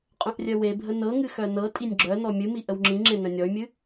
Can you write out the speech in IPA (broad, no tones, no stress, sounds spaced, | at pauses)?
qʼ œ̃ ʔ rʲ œ w e bʱ ə n ɤ ŋ ɨ x œ n ɤ tʼ i nʲ ɡ͡ǁ œ n ɔ mʲ ɨ m i ʔ ə w ŋ͡ǁ ĩ ŋ͡ǁ ẽ n œ̃ nʲ ɔ y̯ mʲ ɨ